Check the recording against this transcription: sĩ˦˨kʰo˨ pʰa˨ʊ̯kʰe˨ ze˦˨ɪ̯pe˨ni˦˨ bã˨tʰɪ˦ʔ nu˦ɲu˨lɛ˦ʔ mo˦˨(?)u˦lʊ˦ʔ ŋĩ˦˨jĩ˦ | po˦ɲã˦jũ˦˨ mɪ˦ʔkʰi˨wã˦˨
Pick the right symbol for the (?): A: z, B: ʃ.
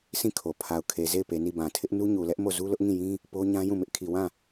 A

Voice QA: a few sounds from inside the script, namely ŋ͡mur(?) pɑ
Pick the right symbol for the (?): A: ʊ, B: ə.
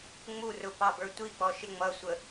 A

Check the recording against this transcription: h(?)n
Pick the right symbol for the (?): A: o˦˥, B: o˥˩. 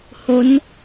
A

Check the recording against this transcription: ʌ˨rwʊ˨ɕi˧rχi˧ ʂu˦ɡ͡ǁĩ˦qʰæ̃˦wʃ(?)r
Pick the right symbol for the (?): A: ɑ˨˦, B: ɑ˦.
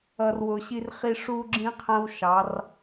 A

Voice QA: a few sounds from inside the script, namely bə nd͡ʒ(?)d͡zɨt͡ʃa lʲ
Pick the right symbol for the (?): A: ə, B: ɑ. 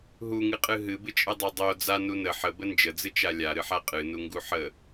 A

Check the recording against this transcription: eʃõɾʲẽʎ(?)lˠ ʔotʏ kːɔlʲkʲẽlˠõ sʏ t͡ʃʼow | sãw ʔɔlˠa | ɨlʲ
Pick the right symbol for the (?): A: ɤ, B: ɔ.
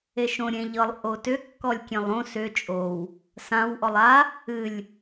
A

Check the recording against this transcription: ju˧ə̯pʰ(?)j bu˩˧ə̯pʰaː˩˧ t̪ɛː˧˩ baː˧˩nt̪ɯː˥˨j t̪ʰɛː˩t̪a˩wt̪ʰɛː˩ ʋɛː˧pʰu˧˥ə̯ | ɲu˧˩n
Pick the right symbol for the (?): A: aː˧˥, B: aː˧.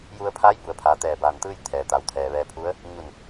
A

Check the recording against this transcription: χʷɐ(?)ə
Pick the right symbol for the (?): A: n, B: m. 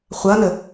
A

